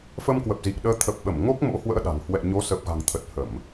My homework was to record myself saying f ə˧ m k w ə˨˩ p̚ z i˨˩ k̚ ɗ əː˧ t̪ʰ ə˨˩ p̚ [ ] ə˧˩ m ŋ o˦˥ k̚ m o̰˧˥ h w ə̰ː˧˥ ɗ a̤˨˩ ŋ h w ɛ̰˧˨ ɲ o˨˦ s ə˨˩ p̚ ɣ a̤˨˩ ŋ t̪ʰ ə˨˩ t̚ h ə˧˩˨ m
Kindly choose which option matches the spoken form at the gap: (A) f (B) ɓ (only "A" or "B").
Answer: B